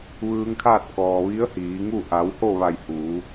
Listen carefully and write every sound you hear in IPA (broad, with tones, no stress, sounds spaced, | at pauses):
ʋ ɯː˧ ŋ kʰ aː˥˨ t̚ k ɔː˩ ʋ i˧˥ ə̯ h iː˩˧ ŋ u˥˨ ʔ a˩˧ w h o˥˨ ʋ a˧˩ j h uː˩˧